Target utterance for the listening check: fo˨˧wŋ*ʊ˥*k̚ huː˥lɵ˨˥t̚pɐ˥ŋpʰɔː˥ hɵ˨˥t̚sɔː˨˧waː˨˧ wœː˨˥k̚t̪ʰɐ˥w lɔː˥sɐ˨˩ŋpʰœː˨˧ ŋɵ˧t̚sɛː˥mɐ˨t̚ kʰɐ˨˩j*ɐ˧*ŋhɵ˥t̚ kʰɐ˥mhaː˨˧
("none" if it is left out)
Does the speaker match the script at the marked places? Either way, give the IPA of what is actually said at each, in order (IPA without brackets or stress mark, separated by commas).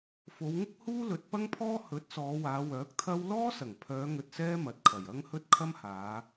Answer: ʊ˥, ɐ˥